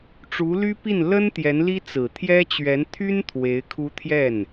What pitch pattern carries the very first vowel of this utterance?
rising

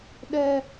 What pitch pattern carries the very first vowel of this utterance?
high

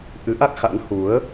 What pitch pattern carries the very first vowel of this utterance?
rising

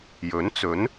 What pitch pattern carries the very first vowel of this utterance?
rising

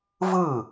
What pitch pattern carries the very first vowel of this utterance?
falling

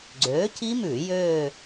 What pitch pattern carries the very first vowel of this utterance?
rising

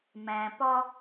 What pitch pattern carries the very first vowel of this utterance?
low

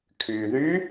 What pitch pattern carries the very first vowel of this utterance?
low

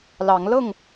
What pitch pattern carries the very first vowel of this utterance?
rising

